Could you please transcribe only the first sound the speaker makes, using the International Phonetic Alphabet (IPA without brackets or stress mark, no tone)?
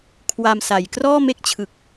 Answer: kʰ